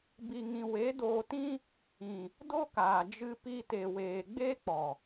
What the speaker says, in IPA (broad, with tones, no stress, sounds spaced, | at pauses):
b i˧ ŋ ĩ˧ w e˨˦ d oː˧ t ĩ˦ | ĩ˨ | d o˦ k aː˨ d͡ʒ ɨ˧ p i˧ t e˨ w eː˨ ɡ͡b eː˦ k͡p ɔ˨